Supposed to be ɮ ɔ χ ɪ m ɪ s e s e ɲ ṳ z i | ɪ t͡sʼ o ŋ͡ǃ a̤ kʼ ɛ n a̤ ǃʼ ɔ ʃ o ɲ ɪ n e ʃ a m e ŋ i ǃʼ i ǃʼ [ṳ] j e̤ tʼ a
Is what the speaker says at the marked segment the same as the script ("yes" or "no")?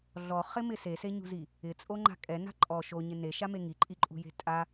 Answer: yes